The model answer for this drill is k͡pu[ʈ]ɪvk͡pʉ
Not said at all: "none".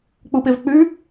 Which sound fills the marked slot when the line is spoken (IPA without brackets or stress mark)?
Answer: p